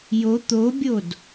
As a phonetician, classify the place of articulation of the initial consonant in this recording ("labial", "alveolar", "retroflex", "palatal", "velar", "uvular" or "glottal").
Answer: palatal